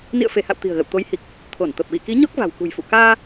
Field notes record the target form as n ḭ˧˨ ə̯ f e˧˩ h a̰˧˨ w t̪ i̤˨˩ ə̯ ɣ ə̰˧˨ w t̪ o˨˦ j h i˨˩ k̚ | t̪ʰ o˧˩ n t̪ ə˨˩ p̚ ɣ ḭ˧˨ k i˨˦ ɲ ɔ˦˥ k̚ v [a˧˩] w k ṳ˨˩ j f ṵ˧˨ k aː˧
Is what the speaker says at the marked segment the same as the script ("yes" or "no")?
no